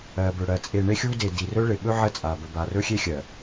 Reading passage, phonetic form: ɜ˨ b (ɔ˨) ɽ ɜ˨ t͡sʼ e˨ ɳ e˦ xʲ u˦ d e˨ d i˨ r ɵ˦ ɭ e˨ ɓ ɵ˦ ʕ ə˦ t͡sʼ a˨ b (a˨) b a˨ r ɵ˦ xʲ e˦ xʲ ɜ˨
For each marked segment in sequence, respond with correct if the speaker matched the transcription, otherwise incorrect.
incorrect, incorrect

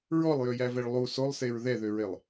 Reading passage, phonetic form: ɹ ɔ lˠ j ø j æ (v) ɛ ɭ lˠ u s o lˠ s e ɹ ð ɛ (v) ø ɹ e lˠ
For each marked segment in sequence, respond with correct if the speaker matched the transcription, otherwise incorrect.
correct, incorrect

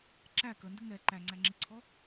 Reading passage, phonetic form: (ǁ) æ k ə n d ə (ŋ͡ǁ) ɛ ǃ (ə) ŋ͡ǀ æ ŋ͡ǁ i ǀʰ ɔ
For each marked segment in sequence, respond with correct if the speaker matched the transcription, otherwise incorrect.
correct, incorrect, incorrect

